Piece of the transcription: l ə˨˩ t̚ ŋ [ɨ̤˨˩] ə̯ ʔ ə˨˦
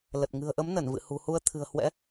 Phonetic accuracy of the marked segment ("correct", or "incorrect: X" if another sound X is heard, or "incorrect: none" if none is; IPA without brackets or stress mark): correct